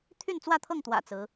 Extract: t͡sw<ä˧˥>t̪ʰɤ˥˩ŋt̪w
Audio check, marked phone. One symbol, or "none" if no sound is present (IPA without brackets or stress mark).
ä˥˧